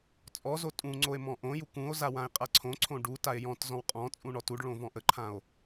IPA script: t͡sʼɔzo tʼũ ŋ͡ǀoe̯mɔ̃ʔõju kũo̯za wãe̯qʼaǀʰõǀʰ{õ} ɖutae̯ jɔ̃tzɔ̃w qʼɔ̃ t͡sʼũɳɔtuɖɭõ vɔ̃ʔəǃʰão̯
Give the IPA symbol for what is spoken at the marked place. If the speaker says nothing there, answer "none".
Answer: õ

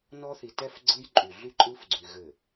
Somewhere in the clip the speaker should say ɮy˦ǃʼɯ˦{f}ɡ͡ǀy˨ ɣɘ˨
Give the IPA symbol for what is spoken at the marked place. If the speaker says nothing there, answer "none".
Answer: f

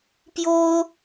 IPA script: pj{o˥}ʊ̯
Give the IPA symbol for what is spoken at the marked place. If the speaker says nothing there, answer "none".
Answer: o˥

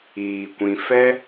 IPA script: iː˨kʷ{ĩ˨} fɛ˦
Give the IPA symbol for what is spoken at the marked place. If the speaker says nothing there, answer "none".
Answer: ĩ˨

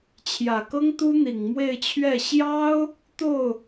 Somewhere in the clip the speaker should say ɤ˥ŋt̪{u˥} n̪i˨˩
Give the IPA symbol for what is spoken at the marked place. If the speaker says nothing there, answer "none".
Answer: u˥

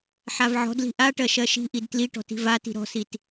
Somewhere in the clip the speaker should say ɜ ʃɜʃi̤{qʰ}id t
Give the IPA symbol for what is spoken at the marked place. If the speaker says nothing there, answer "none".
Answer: ʔ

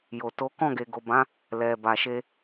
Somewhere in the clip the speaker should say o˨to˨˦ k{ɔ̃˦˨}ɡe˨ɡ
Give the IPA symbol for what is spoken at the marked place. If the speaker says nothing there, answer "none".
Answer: ɔ̃˦˨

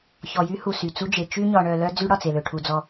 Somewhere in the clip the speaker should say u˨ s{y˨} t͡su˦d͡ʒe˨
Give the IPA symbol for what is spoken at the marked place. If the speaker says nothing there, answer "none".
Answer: y˨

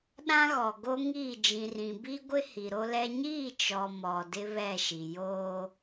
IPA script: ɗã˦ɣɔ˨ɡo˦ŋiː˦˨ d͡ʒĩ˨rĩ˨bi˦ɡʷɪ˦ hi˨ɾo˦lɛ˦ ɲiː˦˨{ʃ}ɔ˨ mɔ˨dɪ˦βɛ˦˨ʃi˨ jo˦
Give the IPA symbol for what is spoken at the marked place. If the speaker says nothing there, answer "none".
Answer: t͡ʃ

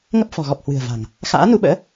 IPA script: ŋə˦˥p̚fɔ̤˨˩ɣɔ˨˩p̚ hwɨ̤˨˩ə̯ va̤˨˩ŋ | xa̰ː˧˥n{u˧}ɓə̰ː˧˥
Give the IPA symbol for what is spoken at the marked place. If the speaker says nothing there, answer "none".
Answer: u˧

